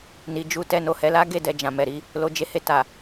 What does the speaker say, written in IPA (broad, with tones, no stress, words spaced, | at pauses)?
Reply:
ni˨d͡ʒu˧ tɛ˧no˨hɛ˧ la˦ɡe˦˨ dɛ˨ d͡ʒã˨mɛ˨ɾi˧ | lo˧d͡ʒe˦ he˧ta˨